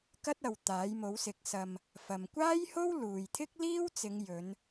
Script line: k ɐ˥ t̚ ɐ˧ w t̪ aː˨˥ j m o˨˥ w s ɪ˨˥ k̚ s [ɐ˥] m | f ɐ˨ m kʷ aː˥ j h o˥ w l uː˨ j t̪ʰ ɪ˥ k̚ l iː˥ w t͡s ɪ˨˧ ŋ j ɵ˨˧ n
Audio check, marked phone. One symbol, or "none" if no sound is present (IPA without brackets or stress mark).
ɐ˧